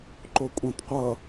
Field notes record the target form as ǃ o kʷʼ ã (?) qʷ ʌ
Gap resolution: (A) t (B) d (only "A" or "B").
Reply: A